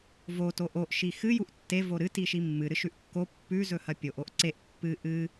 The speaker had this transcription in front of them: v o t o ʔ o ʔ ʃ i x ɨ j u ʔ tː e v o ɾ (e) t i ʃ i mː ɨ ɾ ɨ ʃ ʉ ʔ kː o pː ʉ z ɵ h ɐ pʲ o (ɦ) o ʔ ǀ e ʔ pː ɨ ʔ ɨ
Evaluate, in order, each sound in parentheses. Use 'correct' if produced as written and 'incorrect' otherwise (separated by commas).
incorrect, incorrect